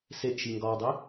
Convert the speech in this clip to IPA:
s e ʔ ʃ i ŋ ɡ ɒ w dˤ i

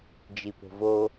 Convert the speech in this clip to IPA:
d͡ʒ i p o̤ v o

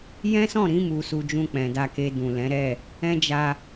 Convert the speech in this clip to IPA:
j ɛ̃˦ s ɔ̃˦˨ ɾ ĩ˨˦ m u˧ s u˧ d͡ʒ ũ˧ k͡p ɛ̃˨ d a˧ k e˧ d ũ˨ l ɛ̃˨˦ ɾ ɛ˦˨ | ɛ̃˦ d͡ʒ a˧

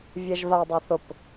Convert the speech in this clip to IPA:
vʲ ɛ ʒ v a dˤ a θ ʊ p

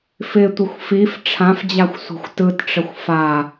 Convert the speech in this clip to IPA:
f ɪ tʷ ɪ xʷ f i f ʈ͡ʂʰ ã f d͡ʑ a xʷ sʷ ɛ̤ xʷ t ɯ t ʈ͡ʂ ə xʷ f a

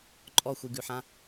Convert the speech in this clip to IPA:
ǃʼ ɔ xʷ i ɡ ʉ ħ ã

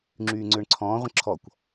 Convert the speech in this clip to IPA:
ŋ͡ǁ yː ŋ͡ǀ ʏː ɳ ǀʰ ɔ̃ː ʁʷ ə̃ ǁʰ ɔ kʷ

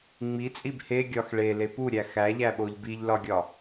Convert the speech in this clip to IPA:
ŋ͡m i t͡sʼ i b h e ɡʲ ɒ x ɭ e l e p u ɾʲ æ x æ ʎ æ ɓ o ʎ b i ʎ l ɒ ɡʲ ɒ

